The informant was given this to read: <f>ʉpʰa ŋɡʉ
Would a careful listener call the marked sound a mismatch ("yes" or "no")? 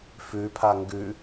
no